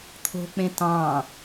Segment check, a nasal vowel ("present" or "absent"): present